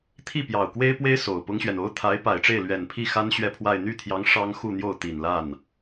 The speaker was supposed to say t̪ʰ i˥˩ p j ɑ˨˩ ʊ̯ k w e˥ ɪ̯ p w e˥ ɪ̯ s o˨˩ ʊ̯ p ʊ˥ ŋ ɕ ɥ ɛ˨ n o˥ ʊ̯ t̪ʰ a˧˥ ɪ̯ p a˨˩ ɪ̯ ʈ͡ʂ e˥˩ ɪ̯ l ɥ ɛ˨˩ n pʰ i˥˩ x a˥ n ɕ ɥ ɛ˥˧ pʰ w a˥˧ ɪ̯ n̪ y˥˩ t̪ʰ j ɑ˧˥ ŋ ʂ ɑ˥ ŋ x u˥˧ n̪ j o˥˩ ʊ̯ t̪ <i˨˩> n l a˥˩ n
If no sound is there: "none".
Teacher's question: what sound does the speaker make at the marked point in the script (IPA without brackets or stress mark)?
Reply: i˨˩